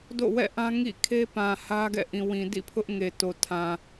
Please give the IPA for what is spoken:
d o̰˦˨ w ɛ̰˦˨ ʔ ã˦ ŋ ḭ˦˨ kʰ e˦ p ã˨ h ä˦ ɡ ɛ̰˦˨ ʔ ĩ˨ w ĩ˨ d ḭ˦˨ pʰ ʊ˦ ʔ ŋ e˨ t o˨ tʰ ã˨

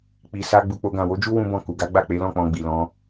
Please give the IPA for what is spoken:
k͡p i˨ s a˧ ɡ͡b u˧ k͡p o˦ ɡ ã˦˨ w o˨˦ d͡ʒ u˦ w ũ˦ b ɔ̃˦˨ k u˨ ɡ a˨˦ ɡ͡b a˦˨ k͡p e˨˦ l ɔ̃˦˨ k͡p ɔ̃˧ ɡ͡b i˨ l ɔ̃˨˦

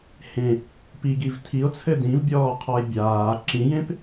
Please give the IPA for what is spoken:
h ẽ | p i ɡ i v tʰ i o̯ t͡sʰ ɘ d ĩ v bʲ ɔː qʰ ɔ e̯ bʲ aː ǁ ĩ j ẽ p

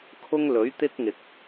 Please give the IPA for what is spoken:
kʰ ʊ˥ ŋ l ɵ˨˥ ɥ t̪ ɪ˥ k̚ ŋ ɪ˨ k̚

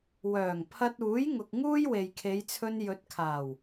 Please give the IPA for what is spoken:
w œː˨˩ ŋ pʰ ɐ˧ t̚ uː˨˥ j ŋ ʊ˨ k̚ ŋ uː˥ j w e˨ j kʰ e˨˧ j t͡sʰ ɵ˧ n j ɵ˨˥ t̚ kʰ aː˨˩ w

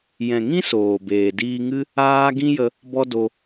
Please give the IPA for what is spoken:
j ɛ̃˨ ŋ ĩ˦ s oː˨ b eː˨ d iː˧ ŋ ɨ˦ | aː˦ ɡ ĩ˦ j ə˧ | b ɔ˦ d o˧

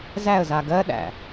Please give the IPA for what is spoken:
z æ ə̯ z a ɡ ɜ ɗ æ̰

